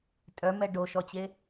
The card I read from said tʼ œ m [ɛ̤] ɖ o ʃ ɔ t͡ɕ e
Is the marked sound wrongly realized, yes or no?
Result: yes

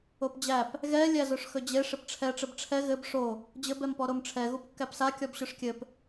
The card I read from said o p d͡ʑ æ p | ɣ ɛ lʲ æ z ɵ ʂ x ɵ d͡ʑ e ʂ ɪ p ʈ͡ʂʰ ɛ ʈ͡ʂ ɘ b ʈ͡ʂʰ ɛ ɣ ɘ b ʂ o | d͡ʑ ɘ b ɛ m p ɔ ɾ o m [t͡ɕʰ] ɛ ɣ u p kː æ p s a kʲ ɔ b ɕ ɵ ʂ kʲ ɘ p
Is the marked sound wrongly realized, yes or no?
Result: yes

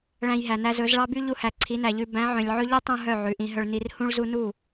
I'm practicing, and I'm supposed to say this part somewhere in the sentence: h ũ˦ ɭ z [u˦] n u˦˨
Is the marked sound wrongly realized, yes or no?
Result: no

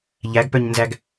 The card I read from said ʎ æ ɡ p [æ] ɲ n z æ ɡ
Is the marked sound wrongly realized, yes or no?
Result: yes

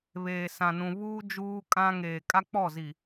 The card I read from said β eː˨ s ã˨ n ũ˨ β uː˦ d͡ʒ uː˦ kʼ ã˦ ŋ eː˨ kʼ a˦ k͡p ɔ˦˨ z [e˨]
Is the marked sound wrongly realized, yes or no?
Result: yes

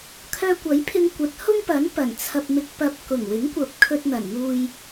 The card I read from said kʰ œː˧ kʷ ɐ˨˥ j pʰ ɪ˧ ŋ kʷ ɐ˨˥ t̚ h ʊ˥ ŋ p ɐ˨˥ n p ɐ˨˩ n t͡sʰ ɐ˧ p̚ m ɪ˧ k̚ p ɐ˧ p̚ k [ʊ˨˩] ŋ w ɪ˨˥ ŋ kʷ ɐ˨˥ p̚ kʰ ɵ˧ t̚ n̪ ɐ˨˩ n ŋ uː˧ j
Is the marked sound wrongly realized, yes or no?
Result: no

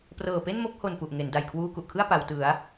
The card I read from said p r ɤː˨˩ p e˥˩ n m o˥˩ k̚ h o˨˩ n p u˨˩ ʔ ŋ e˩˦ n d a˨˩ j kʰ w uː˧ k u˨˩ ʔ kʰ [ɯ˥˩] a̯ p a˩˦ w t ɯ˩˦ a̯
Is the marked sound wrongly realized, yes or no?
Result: no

